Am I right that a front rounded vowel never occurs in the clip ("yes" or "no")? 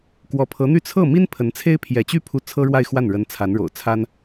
no